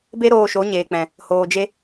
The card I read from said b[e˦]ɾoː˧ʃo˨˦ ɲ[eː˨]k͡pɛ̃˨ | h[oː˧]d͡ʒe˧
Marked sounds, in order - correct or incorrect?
correct, correct, incorrect: oː˨

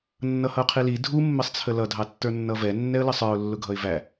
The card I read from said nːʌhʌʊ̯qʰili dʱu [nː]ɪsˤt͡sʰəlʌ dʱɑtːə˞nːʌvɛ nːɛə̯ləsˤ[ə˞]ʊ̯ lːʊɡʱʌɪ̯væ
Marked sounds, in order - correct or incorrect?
incorrect: mː, correct

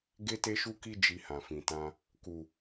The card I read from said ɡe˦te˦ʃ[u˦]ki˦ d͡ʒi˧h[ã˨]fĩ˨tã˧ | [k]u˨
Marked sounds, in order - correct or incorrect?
correct, correct, correct

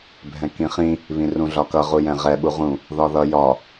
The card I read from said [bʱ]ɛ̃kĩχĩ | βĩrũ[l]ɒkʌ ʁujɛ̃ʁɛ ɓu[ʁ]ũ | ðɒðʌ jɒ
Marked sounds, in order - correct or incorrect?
correct, incorrect: ɮ, correct

